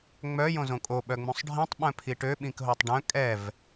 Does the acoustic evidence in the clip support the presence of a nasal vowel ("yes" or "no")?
yes